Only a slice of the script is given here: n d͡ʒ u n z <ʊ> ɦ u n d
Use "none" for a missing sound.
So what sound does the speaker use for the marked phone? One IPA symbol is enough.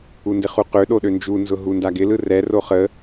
ʊ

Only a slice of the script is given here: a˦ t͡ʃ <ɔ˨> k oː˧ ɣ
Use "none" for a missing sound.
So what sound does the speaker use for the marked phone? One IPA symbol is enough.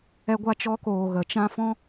ɔ˦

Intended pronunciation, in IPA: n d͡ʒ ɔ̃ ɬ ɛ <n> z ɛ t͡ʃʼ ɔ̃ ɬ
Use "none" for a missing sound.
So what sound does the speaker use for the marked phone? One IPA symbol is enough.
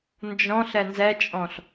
n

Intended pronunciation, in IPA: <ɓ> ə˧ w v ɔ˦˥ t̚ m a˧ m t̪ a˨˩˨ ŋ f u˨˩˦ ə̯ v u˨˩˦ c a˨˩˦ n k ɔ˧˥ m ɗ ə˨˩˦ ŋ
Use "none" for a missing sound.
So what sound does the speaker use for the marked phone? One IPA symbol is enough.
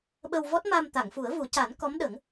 ɓ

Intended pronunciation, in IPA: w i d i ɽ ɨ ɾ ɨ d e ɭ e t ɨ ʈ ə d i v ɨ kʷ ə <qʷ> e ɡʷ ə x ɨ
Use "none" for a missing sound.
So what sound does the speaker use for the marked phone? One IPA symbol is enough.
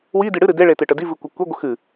kʷ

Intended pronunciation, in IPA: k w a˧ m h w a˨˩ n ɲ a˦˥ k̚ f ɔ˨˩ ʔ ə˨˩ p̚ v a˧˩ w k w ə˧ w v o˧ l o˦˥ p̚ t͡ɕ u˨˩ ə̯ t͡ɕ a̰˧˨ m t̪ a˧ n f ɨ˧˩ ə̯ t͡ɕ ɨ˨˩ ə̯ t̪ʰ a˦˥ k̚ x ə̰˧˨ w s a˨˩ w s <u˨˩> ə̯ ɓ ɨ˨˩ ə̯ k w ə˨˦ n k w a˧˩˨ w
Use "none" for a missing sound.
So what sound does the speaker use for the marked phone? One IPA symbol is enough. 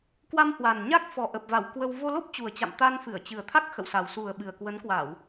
u˨˩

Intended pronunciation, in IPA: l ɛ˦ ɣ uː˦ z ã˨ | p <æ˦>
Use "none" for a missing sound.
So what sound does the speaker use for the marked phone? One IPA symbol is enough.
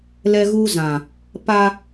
a˦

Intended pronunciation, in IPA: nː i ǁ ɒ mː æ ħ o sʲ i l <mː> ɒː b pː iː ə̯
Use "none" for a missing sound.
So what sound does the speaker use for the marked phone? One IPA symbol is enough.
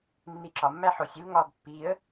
ŋ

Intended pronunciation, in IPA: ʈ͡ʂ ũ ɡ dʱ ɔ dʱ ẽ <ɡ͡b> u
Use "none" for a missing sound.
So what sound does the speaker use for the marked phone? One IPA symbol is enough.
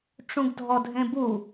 b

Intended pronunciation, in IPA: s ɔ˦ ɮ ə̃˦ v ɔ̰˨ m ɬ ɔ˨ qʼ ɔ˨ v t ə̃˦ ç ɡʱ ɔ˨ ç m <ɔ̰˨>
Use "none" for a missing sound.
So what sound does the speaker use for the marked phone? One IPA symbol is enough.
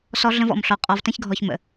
ə̰˨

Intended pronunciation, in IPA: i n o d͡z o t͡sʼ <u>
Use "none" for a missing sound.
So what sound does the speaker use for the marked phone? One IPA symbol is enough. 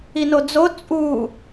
u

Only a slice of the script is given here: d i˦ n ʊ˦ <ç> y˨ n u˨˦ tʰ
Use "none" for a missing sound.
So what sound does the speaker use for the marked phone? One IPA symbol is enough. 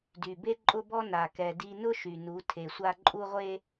ʃ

